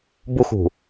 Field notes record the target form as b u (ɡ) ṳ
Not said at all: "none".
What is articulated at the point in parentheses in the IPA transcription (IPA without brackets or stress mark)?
x